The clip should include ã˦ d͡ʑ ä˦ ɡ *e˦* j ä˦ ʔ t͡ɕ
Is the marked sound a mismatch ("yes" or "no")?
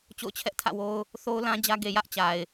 yes